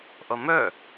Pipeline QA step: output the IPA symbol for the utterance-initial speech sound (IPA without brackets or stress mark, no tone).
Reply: ʔ